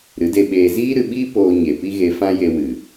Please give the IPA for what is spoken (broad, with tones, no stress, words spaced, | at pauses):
ɾɨ˨˦de˧ɓeː˧ ziː˦ɾɨ˧ɓiː˦ poː˧ɲe˨pi˦ ɣe˧fã˦je˧wɨ˨